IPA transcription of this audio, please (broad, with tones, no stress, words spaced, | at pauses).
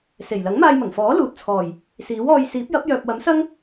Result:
se˨˩j lɐ˨˥ŋmaː˧jmɐ˨˩ŋfɔː˨˥ luː˨t̚t͡sʰɔː˨˩j | siː˨˥wɔː˧j siː˨˥p̚jɐ˨˥p̚ jœː˨p̚wɐ˨˥msɐ˥ŋ